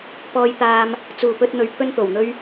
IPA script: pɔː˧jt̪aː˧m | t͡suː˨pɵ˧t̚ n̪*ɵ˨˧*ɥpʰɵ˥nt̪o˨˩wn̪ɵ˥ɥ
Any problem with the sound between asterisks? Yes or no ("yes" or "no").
yes